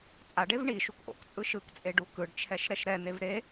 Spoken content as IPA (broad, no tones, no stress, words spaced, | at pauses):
t͡sʼaɖev ɳi ʃukʔo̰kt͡sʼɯ ʃɯkt͡sʼe ɖukɯɖt͡ʃʰɛʃ ɾɛʃɾɛn̪ev ɾe